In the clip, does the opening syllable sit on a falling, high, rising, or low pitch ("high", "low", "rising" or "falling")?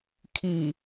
low